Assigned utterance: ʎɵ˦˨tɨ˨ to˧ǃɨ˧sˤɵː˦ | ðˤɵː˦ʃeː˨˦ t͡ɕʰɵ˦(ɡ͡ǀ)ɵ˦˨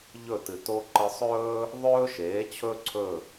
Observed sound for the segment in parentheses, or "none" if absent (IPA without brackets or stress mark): ǀʰ